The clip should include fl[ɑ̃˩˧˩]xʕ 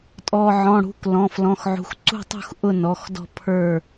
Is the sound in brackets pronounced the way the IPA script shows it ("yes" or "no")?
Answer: no